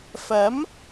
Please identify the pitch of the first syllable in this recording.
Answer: rising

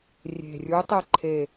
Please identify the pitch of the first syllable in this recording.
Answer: low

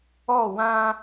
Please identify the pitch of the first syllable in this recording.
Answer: falling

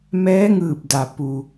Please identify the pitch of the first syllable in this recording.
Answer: rising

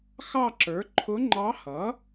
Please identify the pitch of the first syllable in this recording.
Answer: falling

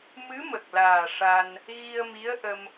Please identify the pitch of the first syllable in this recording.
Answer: rising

